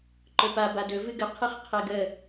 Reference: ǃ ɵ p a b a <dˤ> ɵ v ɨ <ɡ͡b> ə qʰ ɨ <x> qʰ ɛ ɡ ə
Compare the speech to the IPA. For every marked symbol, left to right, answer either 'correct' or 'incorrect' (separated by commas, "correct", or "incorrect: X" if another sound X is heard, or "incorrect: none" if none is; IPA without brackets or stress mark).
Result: incorrect: d, incorrect: ɡ, incorrect: χ